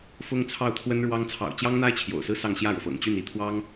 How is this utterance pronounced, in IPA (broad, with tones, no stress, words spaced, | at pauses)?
fʊ˥ŋt͡sʰɑ˥˩ʊ̯t̪ʰwə˥nɻwɑ˥ŋ t͡sʰɑ̰˨˩ʊ̯t͡ɕjɑ˥ŋn̪a˥ɪ̯ t͡ɕʰjo̰˨˩ʊ̯sɹ̩˥sɑ˥˧ŋ ɕjä˥˩ɻɤ˩fɤ̰˨˩ŋt͡ɕy˥˧n i˥˩t̪ʰwɑ˥ŋ